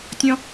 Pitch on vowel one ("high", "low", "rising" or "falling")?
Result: high